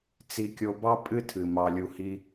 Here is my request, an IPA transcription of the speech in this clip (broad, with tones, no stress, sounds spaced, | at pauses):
t͡s i˧ kʲ o˧ b ɑ˦ pʼ ɨ˦ tʰ ɨ˨ m ɑ˨ lʲ u˨ h i˧